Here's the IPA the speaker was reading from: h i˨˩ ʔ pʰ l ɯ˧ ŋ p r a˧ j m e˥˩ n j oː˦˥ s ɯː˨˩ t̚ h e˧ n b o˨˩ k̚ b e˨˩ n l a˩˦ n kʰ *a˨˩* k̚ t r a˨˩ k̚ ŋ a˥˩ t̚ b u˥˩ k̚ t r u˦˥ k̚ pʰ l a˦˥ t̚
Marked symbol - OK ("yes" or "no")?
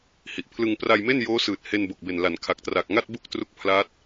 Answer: yes